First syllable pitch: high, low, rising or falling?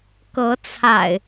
rising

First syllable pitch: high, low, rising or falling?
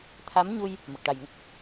rising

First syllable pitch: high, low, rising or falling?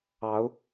rising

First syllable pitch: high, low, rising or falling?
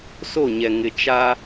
falling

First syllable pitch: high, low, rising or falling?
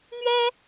high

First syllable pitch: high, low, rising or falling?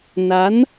rising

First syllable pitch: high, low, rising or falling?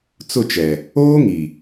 falling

